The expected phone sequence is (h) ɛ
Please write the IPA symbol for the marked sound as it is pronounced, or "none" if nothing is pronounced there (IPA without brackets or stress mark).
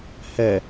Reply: h